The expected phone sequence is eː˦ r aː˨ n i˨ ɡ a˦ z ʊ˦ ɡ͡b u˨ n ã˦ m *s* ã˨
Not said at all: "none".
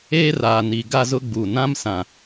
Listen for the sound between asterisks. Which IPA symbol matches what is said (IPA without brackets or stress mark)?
s